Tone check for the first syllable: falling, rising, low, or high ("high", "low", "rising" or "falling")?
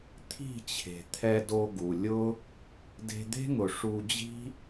falling